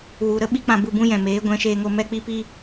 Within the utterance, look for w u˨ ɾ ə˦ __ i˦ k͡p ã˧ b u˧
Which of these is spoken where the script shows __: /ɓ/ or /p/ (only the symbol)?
ɓ